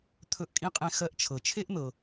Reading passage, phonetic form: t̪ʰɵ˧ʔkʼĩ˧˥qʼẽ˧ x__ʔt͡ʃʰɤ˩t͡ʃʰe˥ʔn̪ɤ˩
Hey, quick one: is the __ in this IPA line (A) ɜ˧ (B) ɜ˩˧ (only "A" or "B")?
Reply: A